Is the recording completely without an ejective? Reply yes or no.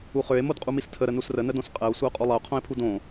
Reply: no